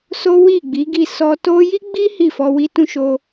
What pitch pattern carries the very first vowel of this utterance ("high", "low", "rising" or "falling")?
high